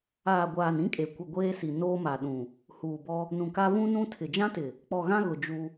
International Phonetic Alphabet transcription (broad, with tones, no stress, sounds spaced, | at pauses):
aː˨ ɡʷ aː˨ n ĩ˦ kʼ e˨ kʷ ɪ˨ ɡʷ eː˦ s i˨ n oː˦ m a˨ ɗ ũ˨ | h uː˨ b ɔ˦ | n ũ˨ k a˦ v ũ˦ n ũ˦ tʰ ɪ˨ d͡ʒ ã˦ t ɪ˨ | k͡p ɔ˨ ɣ ã˦ ɣ ʊ˨ d͡ʒ u˦